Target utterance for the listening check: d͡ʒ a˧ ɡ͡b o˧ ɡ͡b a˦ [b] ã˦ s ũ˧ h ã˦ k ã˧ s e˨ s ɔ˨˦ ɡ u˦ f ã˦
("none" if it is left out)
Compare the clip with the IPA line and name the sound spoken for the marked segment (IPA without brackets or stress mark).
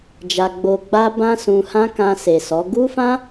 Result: b